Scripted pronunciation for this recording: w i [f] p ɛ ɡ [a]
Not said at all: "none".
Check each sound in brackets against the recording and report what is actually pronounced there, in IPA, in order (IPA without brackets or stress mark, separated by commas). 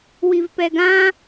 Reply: v, ã